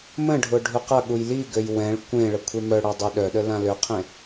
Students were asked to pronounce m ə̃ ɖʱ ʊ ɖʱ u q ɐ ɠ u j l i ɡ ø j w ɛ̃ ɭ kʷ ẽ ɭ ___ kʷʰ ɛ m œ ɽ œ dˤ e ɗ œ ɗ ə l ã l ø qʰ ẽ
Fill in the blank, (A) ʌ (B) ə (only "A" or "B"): B